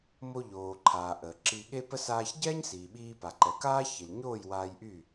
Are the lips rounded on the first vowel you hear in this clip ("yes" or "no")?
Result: yes